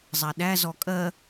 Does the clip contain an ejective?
yes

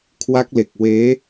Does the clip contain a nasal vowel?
no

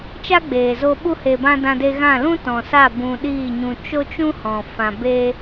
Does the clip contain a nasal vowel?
yes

